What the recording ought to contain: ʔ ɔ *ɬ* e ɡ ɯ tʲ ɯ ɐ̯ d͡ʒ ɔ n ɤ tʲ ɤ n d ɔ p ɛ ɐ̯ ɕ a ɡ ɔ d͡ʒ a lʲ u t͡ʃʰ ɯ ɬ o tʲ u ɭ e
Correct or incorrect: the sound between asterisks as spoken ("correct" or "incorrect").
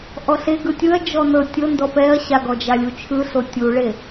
correct